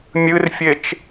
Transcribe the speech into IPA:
mʲ ɨ r fʲ e t͡ʃ

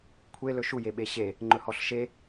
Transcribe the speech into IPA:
kʷʰ e l ɵ ʃ u j e ɓ e ɕ e | ŋ͡ǃ ɵ h ɔ ɬ ʃ e

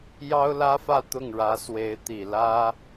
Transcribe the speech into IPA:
j ɑ˥ ʊ̯ l ä˥ f ä˥˧ t̪ ʊ˥˩ ŋ ɻ ä˧˥ s w e˧˥ ɪ̯ t̪ i˨˩ l ä˥

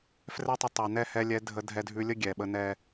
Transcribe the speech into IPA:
f r ɛ˦ tˤ ə˧ tˤ ɛ˨ n ɛ˦˨ h ɛ˧ lʲ ɛ˨˦ dʱ ə˧ dʱ ɛ˧ dʱ ʉ˧ lʲ ə˦ ɡʲ ɛ˨ ɓ ə˦ n ɛ˦

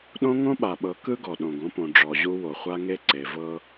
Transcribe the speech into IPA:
ɗ õ˦ ŋ õ˦ ɓ a˨ ɓ ɤ˨˦ k ɯ˦ ɡ ɔ˨ ɗ õ˨ ɡ õ˦ p õ˨ ɖ͡ʐ ɔ˨ ʑ u˦ w o˨ χʷ a˦ ŋ e˦ ǀ e˨ v ɤ˦

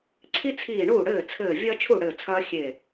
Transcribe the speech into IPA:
ǀʰ i˦ t͡sʰ iː˧˩ ɳ uː˥˩ ɽ ɘː˥˩ t͡sʰ ɘː˧˩ vʲ ɐː˦ t͡ʃʰ u˥˩ ɽ ɘː˧˩ t͡sʰ ɐː˦ xʲ e˧˩

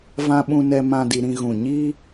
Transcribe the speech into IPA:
v ã˦ ɓ ũ˦ n ɛ˦ m ã˦ d i˧ ɾ ĩ˦ ɣ ũ˦˨ ɲ iː˦

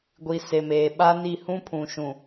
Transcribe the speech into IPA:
ɡʷ i˨ s e˨ m eː˨ ɓ a˦ n i˦˨ h ũ˦ pʰ ũ˨ ʃ ũ˨

